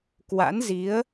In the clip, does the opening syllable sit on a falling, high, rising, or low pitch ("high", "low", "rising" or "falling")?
rising